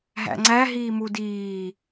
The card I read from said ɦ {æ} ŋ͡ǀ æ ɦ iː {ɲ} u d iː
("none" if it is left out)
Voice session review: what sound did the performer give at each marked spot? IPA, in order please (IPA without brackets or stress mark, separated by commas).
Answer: æ̰, m